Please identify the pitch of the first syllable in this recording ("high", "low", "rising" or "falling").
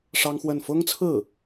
high